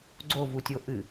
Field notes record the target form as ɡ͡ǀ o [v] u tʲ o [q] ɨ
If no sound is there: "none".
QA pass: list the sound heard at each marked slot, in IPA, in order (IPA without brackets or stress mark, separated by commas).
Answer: v, ʔ